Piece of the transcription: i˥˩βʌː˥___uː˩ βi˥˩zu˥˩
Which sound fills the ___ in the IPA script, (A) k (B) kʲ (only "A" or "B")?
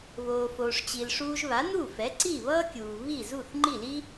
B